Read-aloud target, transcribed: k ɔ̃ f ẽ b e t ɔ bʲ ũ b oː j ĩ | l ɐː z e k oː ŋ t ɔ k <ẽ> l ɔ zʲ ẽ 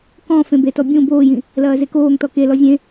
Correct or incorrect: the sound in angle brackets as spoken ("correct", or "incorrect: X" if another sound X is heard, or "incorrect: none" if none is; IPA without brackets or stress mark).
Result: incorrect: e